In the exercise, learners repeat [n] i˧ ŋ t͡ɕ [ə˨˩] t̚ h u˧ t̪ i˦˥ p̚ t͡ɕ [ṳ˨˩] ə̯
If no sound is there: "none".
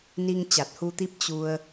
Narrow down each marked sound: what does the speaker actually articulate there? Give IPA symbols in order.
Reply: n, a˨˩, u˧

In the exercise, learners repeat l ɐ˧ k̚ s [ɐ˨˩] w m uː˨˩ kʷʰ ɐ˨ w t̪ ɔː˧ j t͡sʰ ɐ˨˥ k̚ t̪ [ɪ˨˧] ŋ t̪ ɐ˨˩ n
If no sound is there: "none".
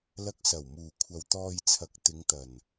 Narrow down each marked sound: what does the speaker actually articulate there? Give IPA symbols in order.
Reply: ɐ˨˩, ɪ˨˧

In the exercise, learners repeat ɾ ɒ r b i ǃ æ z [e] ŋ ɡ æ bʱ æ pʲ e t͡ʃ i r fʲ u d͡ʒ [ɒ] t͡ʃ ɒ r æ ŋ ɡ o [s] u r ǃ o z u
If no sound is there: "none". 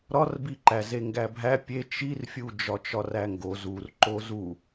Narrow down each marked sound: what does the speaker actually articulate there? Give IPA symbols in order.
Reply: e, ɒ, z

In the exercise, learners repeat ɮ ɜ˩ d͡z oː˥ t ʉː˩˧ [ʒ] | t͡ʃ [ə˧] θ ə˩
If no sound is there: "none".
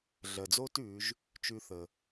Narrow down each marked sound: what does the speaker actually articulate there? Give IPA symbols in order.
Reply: ʒ, ʉ˧

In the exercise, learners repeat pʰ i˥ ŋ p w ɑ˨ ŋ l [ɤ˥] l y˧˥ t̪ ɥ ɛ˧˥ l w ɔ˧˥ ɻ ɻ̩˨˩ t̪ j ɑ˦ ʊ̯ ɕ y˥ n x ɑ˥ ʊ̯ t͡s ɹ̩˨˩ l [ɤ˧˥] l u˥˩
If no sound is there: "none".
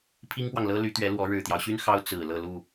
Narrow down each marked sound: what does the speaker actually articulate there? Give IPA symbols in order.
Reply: ɤ˥, ɤ˥˧

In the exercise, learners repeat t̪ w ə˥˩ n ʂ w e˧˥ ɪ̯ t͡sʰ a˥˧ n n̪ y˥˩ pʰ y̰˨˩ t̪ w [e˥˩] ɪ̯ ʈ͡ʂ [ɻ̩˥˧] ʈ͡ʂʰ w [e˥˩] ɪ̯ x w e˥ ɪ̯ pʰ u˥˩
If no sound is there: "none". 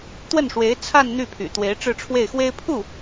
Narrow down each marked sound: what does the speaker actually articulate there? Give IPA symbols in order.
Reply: e˧˥, ɻ̩˥˧, e˥˩

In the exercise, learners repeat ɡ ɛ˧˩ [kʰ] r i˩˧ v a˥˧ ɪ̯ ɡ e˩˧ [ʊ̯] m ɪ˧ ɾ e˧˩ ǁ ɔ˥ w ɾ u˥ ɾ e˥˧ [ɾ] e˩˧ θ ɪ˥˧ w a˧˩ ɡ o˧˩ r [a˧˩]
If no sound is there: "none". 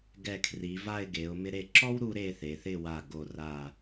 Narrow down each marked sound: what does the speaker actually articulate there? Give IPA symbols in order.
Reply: kʰ, ʊ̯, θ, a˧˩

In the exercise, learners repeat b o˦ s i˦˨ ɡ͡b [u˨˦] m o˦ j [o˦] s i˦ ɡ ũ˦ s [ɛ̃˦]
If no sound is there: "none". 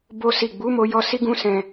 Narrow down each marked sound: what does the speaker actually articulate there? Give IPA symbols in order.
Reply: u˨˦, ɔ˦, ɛ̃˧

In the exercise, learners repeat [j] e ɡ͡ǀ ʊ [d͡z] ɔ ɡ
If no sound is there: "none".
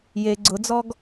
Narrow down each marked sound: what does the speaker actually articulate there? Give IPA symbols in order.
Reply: j, d͡z

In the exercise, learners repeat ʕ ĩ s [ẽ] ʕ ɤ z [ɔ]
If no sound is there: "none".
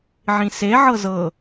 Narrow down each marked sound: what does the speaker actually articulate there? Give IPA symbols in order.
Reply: e, ɤ

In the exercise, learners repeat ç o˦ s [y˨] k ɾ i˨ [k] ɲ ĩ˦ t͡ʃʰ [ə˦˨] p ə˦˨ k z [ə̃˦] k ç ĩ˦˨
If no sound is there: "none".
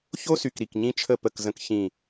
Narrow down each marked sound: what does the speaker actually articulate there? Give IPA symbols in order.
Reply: y˨, k, ə˦˨, ə̃˦

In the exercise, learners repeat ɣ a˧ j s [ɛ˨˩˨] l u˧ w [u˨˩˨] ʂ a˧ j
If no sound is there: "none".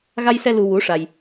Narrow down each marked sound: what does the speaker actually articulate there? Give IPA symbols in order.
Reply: ɛ˧, u˧˥

